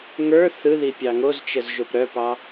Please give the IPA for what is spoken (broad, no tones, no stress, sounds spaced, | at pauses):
ŋ ə˞ θ ɯ ð i pʲ ɑ ŋ o z t͡ʃ ə z ʒ o p ɾ œ p ɑ